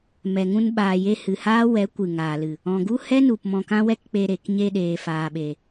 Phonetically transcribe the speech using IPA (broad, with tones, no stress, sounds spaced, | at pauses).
m ɛ˨ ŋ ũ˧ n ɓ aː˨ j e˧ h ɨ˨ h aː˦ w ɛ˨˦ kʷ ɨ˨ ŋ aː˨ l ɨ˨ | ɔ̃˨ ɡ u˦ h ɛ˦ n u˨ p m ɔ̃˧ k ã˦ w ɛ˦ k k͡p e˧ ɾ e˨ k ɲ e˧ ɗ eː˨ f aː˨ ɓ e˨